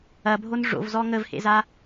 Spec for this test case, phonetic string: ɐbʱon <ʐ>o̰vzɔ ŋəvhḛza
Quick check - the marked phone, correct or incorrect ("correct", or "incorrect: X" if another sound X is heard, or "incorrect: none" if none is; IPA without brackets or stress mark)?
correct